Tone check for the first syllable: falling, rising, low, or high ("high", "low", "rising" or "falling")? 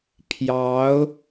rising